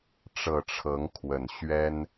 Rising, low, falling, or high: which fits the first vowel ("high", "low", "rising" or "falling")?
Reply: low